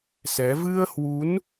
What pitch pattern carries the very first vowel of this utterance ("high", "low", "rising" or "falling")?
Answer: rising